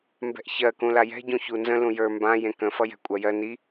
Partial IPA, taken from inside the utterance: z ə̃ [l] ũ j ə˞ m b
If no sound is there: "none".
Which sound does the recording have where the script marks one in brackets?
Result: l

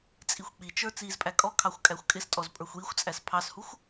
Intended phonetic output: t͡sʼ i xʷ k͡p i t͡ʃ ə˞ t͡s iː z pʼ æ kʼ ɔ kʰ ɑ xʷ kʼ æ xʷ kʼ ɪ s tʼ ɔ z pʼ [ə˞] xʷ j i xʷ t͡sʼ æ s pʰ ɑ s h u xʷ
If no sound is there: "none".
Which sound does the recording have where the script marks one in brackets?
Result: ə˞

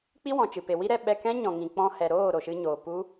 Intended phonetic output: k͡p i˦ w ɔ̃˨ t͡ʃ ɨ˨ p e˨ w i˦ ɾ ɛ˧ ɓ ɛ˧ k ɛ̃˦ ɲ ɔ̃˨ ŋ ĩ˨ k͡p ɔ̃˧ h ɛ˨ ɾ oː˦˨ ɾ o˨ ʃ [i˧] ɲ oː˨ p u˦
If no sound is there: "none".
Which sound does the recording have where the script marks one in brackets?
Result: ɨ˧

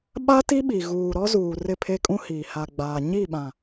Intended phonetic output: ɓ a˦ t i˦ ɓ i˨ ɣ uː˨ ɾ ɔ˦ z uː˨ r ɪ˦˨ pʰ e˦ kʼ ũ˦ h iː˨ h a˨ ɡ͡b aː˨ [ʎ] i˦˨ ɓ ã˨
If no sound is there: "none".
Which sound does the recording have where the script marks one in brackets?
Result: ɲ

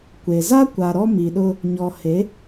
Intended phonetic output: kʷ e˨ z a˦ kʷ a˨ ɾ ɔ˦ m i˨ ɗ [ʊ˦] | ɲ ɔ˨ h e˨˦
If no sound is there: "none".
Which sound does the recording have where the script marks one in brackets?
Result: ʊ˦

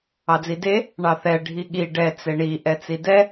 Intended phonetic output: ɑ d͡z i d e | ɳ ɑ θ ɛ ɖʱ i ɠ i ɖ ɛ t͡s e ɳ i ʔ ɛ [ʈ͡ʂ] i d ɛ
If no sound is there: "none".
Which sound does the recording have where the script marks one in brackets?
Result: t͡s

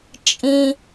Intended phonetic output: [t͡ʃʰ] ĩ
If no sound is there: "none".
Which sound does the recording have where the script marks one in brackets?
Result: t͡ʃʼ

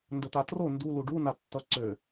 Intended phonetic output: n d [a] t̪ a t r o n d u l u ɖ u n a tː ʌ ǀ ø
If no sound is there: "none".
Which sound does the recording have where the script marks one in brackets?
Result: ə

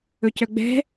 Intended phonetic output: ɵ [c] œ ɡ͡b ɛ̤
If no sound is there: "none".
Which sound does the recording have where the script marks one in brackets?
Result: c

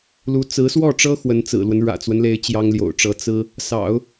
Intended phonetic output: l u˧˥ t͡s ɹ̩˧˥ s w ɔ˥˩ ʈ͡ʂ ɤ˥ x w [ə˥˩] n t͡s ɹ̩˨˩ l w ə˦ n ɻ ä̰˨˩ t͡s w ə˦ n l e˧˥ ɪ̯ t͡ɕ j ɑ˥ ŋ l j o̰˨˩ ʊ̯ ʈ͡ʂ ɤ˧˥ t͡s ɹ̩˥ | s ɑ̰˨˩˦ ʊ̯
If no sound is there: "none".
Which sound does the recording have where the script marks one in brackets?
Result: ə˧˥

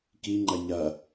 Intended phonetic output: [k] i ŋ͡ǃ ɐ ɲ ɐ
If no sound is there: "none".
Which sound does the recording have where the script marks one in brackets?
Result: k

